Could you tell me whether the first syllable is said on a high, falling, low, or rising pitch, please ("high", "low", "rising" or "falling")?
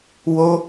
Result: high